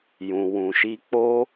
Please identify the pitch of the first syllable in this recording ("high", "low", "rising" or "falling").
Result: low